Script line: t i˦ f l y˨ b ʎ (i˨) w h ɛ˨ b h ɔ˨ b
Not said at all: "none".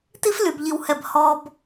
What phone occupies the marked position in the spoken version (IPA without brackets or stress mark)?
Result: i˨